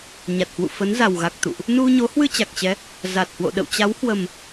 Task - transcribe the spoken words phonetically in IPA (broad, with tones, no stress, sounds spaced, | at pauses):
ɲ a˨˩ t̚ h w ṵ˧˨ f ə˨˦ n z a˨˩ w ɣ a˨˩ k̚ t̪ ṵ˧˨ ʔ | n u˧ ɲ o˨˦ h w ɨ˧ t͡ɕ a˨˩ k̚ t͡ɕ ɛ˨˦ | z a˨˩ t̚ h w o̰˧˨ ɗ ə̰˧˨ w t͡ɕ a˨˦ w h w ə˨˩ m